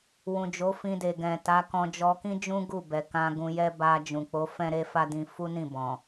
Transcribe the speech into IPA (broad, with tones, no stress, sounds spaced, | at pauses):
w ũ˨ d͡ʒ o˨˦ f ĩ˧ d e˨ ɡ ɛ̃˨ t a˨˦ k ɔ̃˧ d͡ʒ ɔ˧ k ĩ˦ d͡ʒ ũ˦ ɡ u˦˨ b ɛ˨ k ã˧ ɡ ũ˧ j ɛ˦ b a˧ d͡ʒ ũ˨ k͡p o˨˦ f ɛ̃˦ ɾ e˦ f a˦ d ĩ˧ f u˦ n ĩ˦˨ b ɔ̃˨